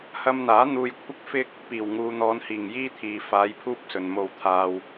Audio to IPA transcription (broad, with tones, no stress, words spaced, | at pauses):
hɐ˧mn̪aː˨˥ n̪uː˧jkʷʰɪ˥k̚fɪ˥k̚ | piː˨˩wŋuː˨n̪ɔː˨˧nhiː˨˩ŋ jiː˥t̪ʰiː˨ faː˨˧jpʰuː˧p̚ sɵ˨nmo˧wt̪ʰaː˧w